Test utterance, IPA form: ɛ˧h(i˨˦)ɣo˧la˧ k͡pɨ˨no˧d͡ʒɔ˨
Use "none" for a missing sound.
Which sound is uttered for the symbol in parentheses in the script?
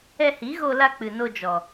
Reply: i˨˦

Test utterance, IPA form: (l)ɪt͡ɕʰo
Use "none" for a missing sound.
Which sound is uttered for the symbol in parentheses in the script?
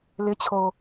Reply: l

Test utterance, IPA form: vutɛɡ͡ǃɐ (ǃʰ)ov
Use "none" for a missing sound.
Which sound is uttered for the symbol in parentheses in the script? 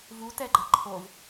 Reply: ǃʰ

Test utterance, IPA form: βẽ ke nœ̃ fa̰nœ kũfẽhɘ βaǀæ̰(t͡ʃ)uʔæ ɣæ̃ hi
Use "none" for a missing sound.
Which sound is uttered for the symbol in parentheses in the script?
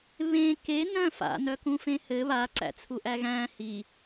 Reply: t͡sʰ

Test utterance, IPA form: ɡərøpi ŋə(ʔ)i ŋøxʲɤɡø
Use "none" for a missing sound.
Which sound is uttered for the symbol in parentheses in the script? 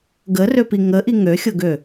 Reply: ʔ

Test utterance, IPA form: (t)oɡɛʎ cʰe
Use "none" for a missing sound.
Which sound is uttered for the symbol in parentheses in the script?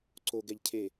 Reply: ǀ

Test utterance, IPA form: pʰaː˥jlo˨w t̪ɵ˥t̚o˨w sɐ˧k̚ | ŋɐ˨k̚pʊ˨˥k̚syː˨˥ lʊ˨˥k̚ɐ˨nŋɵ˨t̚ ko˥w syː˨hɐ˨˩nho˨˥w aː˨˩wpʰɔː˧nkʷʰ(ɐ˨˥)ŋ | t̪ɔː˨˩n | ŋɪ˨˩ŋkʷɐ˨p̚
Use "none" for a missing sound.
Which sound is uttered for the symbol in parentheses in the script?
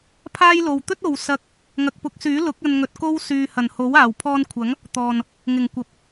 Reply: ɐ˨˥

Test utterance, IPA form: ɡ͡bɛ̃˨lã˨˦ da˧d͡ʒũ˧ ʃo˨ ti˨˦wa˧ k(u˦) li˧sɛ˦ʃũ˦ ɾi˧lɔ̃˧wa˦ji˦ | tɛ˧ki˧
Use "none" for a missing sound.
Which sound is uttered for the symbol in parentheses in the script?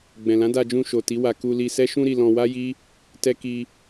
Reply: u˧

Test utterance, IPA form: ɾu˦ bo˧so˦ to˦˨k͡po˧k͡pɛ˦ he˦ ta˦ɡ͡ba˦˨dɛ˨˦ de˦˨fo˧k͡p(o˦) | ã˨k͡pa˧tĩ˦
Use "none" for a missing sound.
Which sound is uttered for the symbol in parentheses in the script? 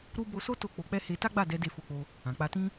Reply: o˧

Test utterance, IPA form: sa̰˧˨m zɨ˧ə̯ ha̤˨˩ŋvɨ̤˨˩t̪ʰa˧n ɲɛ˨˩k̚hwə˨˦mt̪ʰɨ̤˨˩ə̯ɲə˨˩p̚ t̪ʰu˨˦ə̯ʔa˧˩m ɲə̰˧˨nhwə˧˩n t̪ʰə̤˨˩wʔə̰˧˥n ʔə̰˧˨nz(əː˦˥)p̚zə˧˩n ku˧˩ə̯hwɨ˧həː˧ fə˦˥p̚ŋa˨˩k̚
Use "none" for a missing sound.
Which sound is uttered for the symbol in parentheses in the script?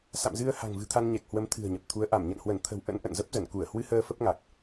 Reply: ə˦˥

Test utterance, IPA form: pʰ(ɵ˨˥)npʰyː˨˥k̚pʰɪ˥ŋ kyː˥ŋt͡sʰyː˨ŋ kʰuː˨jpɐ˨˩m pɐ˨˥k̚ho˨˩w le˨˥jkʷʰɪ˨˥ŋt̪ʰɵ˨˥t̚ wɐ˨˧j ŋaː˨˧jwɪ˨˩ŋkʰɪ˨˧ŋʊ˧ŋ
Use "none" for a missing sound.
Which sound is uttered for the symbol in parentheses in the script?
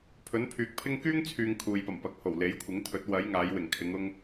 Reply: ɵ˨˥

